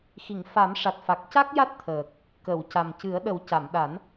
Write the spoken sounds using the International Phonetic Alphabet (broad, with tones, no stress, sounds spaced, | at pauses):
x i˨˩˨ ŋ f a˨˩˦ m ʂ a˨˩ t̚ f a˨˩ k̚ c a˦˥ k̚ j a˦˥ t̚ t̪ʰ əː˨˩ k̚ | k ə˨˩˨ w c a˨˩ m c ɨ˨˩˦ ə̯ ɗ ə˨˩˦ w c a˨˩˨ m ɗ a˨˩˦ n